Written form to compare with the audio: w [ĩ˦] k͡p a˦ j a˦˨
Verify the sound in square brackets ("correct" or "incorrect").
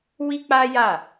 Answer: incorrect